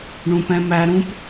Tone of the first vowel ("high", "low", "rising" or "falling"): low